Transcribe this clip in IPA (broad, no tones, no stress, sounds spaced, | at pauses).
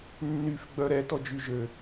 nː y f ɡ͡b œ ɾ ɛ t ɔ d͡ʒ y ʒ ø